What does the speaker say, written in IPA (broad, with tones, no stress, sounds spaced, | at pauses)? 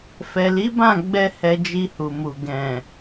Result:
f ɛ˨ l i˨˦ b ã˦˨ ɡ͡b ɛ˧ h ɛ˧ d͡ʒ i˧ h u˨ m u˨ ɡ ɛ̃˨